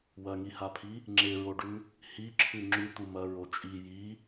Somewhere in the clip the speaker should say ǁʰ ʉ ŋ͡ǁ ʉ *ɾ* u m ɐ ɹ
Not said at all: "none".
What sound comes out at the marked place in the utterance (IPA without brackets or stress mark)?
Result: t̪